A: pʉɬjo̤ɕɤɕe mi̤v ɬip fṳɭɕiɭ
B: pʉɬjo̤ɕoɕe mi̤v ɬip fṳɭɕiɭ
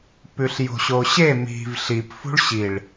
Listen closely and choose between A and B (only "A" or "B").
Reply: B